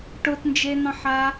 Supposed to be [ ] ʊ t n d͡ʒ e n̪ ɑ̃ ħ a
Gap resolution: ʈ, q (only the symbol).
ʈ